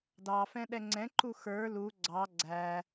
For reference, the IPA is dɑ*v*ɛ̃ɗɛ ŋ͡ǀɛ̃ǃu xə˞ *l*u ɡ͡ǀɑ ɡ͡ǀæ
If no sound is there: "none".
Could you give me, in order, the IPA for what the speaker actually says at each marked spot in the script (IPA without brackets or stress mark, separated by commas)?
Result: f, l